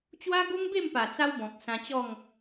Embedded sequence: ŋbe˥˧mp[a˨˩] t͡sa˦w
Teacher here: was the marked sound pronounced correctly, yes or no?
yes